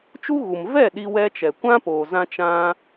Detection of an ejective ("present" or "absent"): absent